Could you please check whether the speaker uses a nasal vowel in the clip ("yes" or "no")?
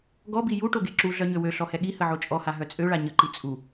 no